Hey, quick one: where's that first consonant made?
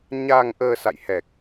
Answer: palate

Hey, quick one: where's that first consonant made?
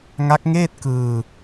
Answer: velum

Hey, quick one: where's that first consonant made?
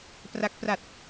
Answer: lips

